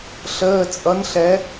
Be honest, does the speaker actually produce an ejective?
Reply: yes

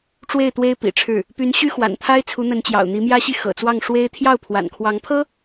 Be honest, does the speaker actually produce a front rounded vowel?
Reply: yes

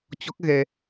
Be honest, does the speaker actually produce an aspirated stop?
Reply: no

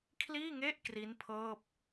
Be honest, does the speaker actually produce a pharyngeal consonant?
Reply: no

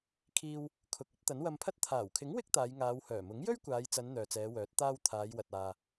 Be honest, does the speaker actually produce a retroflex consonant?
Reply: no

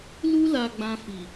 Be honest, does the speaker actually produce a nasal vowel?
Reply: yes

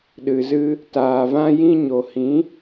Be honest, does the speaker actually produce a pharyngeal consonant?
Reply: no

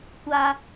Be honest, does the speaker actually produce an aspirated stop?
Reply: no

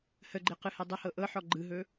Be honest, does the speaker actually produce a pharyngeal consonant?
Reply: yes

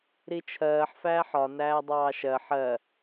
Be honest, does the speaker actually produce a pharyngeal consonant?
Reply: yes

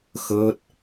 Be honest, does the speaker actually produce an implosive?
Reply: no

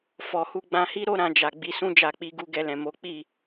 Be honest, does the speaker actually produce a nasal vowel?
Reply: yes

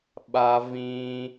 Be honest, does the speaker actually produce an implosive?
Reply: yes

